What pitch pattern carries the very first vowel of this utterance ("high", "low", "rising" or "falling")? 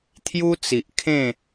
high